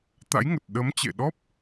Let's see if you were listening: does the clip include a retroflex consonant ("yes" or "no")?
no